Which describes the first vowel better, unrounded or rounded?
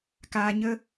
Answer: unrounded